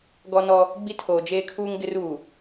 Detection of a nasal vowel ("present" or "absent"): absent